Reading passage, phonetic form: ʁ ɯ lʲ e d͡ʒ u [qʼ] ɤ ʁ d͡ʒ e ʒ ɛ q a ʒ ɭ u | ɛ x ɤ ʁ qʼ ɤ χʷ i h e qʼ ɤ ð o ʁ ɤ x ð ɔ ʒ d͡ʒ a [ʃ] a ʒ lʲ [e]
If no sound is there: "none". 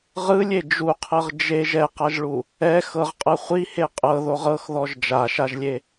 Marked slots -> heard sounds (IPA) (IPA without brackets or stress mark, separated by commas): qʰ, ʃ, e